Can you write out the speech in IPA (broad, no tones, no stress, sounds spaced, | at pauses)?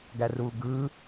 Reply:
ɡ æ r uː ɡ ɯ